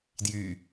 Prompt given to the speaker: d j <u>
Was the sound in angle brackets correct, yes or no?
no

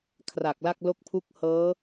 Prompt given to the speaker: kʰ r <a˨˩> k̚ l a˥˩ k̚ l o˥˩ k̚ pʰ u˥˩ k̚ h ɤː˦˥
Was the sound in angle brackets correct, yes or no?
yes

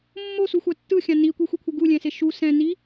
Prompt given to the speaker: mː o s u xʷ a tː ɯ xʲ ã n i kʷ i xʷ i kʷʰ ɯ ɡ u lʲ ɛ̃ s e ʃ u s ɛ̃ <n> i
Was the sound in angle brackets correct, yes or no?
yes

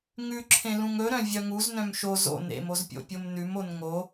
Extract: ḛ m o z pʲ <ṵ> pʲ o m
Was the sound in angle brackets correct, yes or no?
no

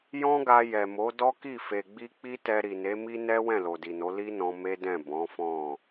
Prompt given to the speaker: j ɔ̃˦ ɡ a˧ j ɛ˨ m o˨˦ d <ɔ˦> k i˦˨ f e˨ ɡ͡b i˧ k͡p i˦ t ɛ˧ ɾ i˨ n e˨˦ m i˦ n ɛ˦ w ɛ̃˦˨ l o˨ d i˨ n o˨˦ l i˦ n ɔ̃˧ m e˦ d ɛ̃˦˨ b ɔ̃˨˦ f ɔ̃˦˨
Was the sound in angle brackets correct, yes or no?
yes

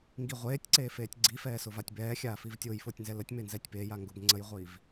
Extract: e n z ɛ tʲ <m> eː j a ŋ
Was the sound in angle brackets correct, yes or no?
no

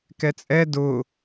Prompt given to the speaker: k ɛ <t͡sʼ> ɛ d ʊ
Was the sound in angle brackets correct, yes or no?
yes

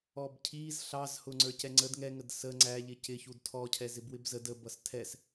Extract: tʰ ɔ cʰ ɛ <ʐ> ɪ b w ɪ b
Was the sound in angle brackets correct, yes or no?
no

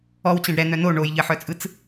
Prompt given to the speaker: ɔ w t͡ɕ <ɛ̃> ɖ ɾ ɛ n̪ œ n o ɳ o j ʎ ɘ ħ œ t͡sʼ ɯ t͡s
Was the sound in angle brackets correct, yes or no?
yes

